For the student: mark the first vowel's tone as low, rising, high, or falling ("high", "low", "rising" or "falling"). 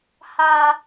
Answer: high